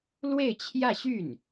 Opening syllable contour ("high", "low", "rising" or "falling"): falling